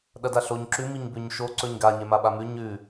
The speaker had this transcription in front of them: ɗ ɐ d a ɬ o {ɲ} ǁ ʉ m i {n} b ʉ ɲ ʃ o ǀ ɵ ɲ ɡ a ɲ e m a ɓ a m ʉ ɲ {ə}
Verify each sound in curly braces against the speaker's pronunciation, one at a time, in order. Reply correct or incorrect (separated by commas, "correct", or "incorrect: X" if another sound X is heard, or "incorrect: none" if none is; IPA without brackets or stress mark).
correct, incorrect: ɲ, incorrect: ʉ